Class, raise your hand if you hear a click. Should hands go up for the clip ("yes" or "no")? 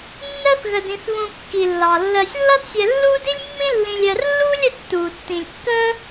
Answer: no